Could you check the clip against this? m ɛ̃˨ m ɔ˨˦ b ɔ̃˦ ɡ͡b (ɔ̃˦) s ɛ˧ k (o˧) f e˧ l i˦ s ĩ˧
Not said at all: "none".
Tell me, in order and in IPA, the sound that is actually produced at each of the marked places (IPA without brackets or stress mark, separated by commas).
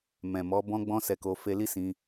ɔ̃˦, o˧